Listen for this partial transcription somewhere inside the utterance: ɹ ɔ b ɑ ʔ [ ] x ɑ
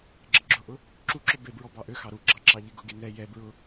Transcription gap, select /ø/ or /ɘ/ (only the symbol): ø